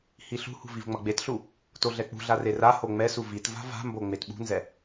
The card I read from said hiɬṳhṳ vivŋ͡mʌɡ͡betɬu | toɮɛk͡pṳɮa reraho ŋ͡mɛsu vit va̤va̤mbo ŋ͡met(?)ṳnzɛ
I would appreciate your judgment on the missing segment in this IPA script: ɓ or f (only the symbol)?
ɓ